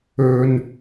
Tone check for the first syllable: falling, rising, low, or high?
low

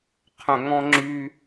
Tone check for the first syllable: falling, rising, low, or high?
low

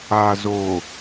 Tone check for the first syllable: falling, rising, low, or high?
low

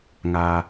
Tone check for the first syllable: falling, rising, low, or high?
low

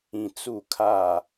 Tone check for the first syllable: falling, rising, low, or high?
low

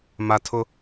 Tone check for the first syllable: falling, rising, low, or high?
high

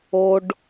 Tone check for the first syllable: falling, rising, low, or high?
high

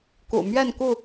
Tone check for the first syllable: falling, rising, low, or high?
low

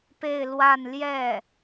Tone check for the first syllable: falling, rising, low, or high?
falling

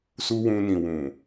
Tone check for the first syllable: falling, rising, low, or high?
high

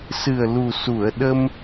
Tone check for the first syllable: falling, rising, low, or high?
low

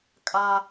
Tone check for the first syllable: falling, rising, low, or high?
high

